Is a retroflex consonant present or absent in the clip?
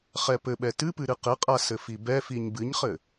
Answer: absent